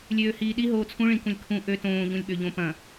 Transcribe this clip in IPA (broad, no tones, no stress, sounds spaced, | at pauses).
lʲ øː h iː ɗ i ɦ oː t͡sʰ ũ ɭ ĩ k ũ lʲ kʰ ũ ʔ ø t õː ʎ ũ lʲ ɓ ø ʎ õ p ɐ̃